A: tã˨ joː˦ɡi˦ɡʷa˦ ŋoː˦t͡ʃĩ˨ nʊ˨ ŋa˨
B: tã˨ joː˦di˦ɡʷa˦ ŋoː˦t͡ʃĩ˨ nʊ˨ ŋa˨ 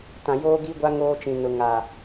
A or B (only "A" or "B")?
A